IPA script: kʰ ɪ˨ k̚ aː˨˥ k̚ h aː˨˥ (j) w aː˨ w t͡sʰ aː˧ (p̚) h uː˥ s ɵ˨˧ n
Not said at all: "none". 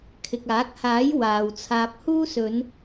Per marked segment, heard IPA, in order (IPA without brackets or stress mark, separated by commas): j, p̚